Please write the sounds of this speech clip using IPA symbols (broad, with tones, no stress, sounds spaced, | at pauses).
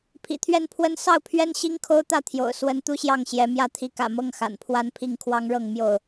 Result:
pʰ ḭ˨˩ t̪ʰ ɥ ɛ˥˨ n pʰ w ə˦ n s ɑ˥˨ ʊ̯ pʰ ɥ ɛ˦ n ɕ i˦ ŋ kʰ o˦ ʊ̯ t̪ ä˥˨ t̪ʰ j o̰˨˩ ʊ̯ s w ə˨˦ n t̪ u˦ ɕ j ɑ˥˨ ŋ ɕ j ɛ˨˦ m j ä˥˨ t̪ʰ i˨˦ k ä̰˨˩ m ɤ˥˨ ŋ x a̰˨˩ n pʰ w a˦ n pʰ i˥˨ ŋ kʰ w ɑ˦ ŋ ɻ ɤ˥˨ ŋ m j o˥˨ ʊ̯